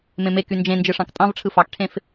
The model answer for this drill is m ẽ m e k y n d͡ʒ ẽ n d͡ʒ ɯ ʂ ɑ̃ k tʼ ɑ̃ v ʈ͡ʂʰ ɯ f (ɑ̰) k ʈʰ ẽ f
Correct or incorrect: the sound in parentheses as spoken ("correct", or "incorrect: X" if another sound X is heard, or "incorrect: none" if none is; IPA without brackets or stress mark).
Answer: incorrect: ɑ